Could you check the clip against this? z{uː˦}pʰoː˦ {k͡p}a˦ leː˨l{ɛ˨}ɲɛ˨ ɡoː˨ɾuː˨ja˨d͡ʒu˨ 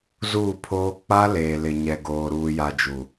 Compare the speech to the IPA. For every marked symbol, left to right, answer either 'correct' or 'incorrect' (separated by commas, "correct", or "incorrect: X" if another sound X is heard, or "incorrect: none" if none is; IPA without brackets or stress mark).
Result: incorrect: uː˦˨, correct, incorrect: ɪ˨